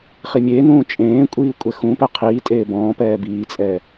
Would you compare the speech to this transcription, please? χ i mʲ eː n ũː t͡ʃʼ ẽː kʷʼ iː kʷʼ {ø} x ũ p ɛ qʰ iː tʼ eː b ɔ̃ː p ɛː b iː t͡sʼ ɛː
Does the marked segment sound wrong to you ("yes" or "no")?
yes